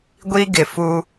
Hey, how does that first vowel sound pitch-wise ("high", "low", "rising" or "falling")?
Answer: high